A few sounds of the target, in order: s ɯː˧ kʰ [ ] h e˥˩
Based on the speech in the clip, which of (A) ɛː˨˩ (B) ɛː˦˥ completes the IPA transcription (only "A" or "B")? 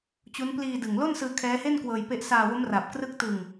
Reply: B